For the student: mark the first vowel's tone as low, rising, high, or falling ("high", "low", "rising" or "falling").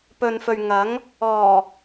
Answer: low